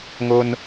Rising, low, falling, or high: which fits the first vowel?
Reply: high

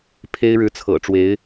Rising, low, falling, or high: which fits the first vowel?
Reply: high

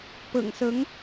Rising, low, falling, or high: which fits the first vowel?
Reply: low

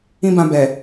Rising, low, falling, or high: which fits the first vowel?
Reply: high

